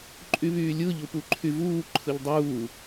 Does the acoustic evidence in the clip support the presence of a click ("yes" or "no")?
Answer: yes